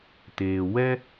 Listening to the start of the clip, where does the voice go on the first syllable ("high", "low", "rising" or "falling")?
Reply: low